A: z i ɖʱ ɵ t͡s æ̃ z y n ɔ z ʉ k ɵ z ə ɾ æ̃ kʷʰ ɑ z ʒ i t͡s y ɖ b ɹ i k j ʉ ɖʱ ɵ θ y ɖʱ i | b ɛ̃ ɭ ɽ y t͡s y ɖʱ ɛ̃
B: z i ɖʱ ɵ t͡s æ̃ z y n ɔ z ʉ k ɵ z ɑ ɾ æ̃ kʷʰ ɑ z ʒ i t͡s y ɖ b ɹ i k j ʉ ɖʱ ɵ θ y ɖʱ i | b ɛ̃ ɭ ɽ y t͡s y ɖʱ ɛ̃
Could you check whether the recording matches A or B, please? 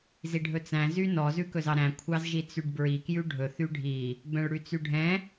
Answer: B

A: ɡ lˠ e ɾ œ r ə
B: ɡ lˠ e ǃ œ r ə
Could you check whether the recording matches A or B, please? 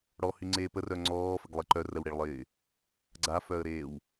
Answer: B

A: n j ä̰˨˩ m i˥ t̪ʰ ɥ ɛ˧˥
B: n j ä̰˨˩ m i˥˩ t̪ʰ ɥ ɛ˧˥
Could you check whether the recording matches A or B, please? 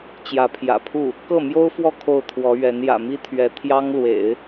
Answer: A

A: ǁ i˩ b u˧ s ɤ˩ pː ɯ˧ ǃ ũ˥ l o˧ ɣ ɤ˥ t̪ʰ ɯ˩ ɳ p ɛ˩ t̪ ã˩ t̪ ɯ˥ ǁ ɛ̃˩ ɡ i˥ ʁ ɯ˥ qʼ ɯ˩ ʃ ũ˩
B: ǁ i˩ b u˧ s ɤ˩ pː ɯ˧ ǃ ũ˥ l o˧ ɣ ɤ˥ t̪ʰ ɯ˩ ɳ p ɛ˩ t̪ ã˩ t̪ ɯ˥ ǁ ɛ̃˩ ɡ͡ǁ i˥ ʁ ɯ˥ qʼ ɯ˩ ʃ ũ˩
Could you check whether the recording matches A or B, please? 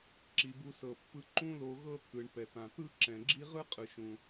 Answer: B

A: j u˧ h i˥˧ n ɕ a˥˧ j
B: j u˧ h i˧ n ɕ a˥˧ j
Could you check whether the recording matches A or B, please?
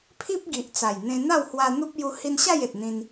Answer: B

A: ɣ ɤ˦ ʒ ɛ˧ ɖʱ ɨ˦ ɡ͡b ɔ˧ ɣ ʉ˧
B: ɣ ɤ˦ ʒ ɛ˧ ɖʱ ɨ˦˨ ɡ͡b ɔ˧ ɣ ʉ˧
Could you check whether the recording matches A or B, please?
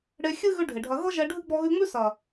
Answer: A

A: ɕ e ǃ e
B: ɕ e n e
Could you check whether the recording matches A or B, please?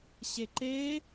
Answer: A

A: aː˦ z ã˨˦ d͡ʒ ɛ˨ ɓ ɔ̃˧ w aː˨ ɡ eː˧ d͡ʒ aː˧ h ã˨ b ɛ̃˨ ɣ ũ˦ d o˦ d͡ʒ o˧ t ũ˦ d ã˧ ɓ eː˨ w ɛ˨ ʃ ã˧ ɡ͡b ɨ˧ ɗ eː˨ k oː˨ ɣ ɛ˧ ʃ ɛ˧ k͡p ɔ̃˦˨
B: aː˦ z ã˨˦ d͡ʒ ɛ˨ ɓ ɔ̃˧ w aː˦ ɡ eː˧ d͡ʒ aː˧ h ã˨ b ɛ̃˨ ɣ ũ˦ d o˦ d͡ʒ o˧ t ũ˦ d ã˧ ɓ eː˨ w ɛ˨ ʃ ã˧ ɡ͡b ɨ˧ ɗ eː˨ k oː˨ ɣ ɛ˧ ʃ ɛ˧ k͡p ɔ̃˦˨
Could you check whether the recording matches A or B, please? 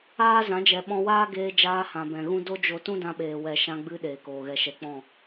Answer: B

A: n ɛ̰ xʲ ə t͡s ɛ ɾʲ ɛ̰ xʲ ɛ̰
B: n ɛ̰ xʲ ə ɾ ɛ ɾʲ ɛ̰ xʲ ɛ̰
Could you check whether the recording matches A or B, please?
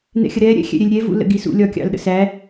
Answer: B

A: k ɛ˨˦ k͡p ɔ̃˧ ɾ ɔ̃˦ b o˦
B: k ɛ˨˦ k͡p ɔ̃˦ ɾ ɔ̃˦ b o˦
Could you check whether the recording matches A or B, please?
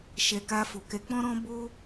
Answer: B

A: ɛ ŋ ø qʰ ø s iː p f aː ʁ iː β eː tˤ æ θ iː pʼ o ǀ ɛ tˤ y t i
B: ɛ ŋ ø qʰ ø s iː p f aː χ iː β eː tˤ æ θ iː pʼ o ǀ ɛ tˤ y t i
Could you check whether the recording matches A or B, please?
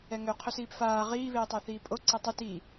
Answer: A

